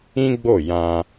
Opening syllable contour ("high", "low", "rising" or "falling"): high